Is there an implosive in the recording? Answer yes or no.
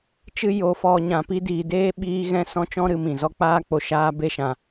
yes